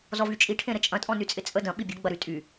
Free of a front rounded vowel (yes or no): no